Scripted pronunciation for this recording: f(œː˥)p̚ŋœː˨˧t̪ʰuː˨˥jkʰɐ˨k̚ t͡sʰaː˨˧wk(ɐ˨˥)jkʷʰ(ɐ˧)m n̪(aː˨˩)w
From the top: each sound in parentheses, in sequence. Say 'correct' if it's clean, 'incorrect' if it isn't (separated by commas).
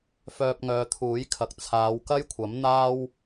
incorrect, incorrect, incorrect, incorrect